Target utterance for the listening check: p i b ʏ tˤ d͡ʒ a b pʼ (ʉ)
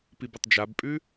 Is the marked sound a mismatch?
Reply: no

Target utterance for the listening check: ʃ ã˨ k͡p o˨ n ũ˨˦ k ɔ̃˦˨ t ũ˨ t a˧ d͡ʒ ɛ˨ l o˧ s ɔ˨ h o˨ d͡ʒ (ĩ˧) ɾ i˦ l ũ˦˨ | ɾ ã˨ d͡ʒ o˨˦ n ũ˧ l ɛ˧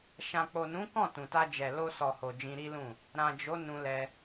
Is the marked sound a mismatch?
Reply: no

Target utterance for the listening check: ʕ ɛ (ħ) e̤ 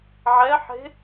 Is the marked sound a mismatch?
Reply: no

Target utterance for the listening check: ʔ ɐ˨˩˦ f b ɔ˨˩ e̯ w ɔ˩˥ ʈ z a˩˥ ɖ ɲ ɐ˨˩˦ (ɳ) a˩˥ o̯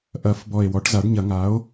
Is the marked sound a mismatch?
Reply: yes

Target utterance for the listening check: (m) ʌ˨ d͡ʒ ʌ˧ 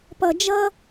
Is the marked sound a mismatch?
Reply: yes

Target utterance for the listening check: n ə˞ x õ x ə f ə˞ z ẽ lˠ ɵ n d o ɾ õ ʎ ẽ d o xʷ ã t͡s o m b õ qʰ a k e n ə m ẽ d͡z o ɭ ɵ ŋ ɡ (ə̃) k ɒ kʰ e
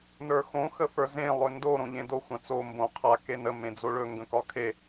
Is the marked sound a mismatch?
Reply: no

